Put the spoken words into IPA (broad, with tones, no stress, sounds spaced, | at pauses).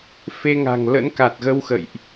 f e˧ ŋ a̤˨˩ ŋ l ə̰˧˥ n k a˨˩ t̚ ɣ ə˧ w x ə̰˧˨ j ʔ